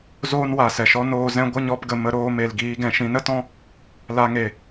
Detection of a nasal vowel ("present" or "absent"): present